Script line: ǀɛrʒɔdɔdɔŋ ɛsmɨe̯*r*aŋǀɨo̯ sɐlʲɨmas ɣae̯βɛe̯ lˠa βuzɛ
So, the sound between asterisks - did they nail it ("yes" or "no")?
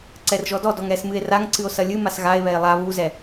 yes